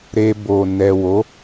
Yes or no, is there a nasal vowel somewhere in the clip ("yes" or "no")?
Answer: no